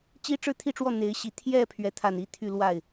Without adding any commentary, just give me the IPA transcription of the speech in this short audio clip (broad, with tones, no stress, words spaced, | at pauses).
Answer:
t͡ɕi˥ʈ͡ʂɻ̩˥˧t̪ʰi˥˧ʈ͡ʂwɔ˥˩ n̪e˧˥ɪ̯ɕi˧˥ t̪ʰjɛ˥˧ pʰɥɛ˥˧t̪ʰa˥˧n i˥˧t̪ʰy˥˧lwa˥˩ɪ̯